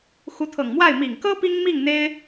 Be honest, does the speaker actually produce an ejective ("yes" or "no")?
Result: no